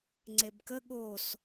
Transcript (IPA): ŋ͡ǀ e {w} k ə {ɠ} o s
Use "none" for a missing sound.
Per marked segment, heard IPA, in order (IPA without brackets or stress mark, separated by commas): b, ɠ